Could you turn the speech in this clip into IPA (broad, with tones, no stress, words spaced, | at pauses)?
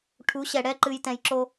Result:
ʈʰu˨˦ɕɛ˨ ɽɛ˦ǃɨ˨j tɛ̃˨jǁo˦